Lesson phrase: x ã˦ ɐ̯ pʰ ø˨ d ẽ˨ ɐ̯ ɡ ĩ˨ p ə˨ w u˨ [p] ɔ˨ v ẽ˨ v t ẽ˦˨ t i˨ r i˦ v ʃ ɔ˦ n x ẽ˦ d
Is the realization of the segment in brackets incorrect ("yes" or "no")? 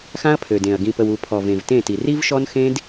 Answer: yes